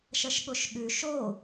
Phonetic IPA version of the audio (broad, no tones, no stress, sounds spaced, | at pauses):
ʃ ɐ ʃ ɠ o ʃ ɠ ʉ ʃ o